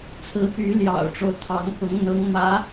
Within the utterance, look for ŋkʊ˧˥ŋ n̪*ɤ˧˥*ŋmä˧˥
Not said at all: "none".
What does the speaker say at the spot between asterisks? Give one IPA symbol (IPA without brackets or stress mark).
ɤ˧˥